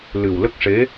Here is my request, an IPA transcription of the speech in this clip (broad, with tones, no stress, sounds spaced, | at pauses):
l ɨ˨˩ w l ə˦˥ k̚ ʂ e˧˥